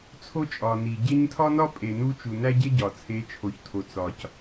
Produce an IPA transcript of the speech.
t͡sʰ o˦ t͡ʃʼ ɒ˨ n i˨ ɟ e˦ ɲ tʰ ɒ˦ n ɒ˦ pʼ e˨ n u˦ t͡ʃ u˨ n æ˦ ɟ e˦ ɟ ɒ˨ t͡sʰ e˨˦ t͡ʃʰ o˨ ç tʰ o˨ t͡s ɒ˨ c

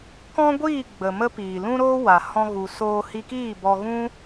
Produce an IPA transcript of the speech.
k ɔ̃˦ ɡʷ iː˦˨ ɡ͡b ə˨ m ə˦ p iː˨ l ũ˦ ɾ oː˦ w a˨ h ɔ̃˧ ɣ u˨ s oː˧ h i˧ k iː˦˨ b ɔ˧ ɣ ũ˦

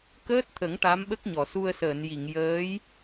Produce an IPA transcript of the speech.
k əː˦˥ t̚ t̪ʰ ə˨˩˦ ŋ ʈ a˧˥ m ɓ ə˦˥ k̚ ɲ ɔ˨˩˨ s u˧ ə̯ s əː˨˩˨ n j i˨˩˨ ŋ j əː˧˥ j

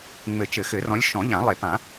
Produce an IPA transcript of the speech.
ŋ͡m ɘ˨˩˦ t͡ʃ ɘ˨˩˦ x ɘ˨˩˦ r ɔ̃˨˦ lʲ ʃ ɔ̃˨˩˦ ʎ ã˨˩˦ lˠ e˨˩˦ p ã˨˩˦

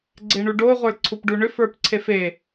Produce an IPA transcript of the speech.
ɡ͡ǀ e ɳ u ɖ o ʁʷ ə˞ l ǀʰ u p ɖ u ɳ ʏ f ə˞ p ǀʰ e f e

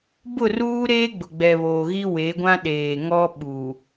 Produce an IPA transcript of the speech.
b ʊ˦˨ r uː˦ ɾ eː˦ ɡ͡b ʊ˨ ɡ͡b ɛ˨ β oː˨ ɣ i˦ w e˨˦ ɡʷ ã˦ ɗ eː˨ ŋ ɔ˦ ɓ u˨

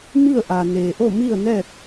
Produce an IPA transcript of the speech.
m i˥˨ ə̯ ʔ a˩ n eː˩ ʔ o˥˨ m i˥˨ ə̯ n ɛː˥˨ t̚

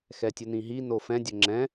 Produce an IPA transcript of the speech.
x ɛ tʲ ʊ n ĩ ɦ i n o f ɛ̃ dʲ ʊ ŋ͡ǁ ɛ̃

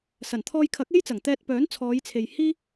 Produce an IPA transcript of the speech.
s ɐ˨˩ n t̪ʰ ɔː˧ j kʰ ɐ˨˥ k̚ e˥ j t͡s ɐ˨˩ ŋ t̪ ɛː˧ t̚ p œː˨˥ n t͡sʰ ɔː˨˧ j t͡sʰ e˨ j h iː˥

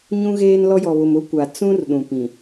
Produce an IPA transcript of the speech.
ɲ ũ˦ ɣ eː˦ n l ɔ˦ j ɔ˨ β ʊ˨ m ʊ˦ kʷ a˨ t͡s ũ˦ r ɗ ũ˨ p ĩ˨

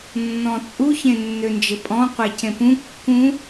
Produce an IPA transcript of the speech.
nː ɔ̃ t͡sʼ u ç ẽ nː ø n d͡ʒ ɘ pʼ ɔ̃ qʷ e c ẽ p ũ kː ũ

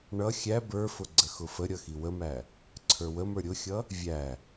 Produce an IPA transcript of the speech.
ɳ ʌ xʲ æ b ə˞ f ʊ ɡ͡ǀ ə x ʊ f ə ɾʲ ʌ x i w ə m æ | ǀʰ ə˞ w ə m ə˞ ɾʲ ʊ xʲ ʌ | vʲ æ

